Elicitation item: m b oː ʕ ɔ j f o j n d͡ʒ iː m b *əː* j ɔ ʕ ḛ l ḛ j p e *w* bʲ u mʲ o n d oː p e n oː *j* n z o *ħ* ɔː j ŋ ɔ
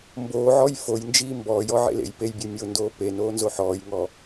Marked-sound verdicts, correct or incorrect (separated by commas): incorrect, incorrect, incorrect, correct